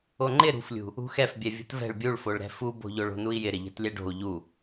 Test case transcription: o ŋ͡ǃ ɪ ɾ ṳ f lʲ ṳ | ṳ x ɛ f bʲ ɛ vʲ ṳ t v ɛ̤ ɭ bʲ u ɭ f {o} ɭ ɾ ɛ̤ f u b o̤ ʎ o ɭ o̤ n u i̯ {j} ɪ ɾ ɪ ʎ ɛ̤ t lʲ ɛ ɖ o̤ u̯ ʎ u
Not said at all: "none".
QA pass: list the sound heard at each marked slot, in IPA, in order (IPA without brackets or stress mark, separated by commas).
o, j